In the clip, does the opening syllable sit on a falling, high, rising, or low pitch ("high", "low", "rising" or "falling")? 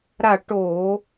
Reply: falling